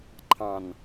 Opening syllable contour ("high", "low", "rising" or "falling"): low